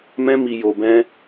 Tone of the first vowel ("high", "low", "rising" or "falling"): high